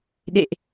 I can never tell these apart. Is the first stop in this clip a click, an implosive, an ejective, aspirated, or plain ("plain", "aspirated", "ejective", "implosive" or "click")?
implosive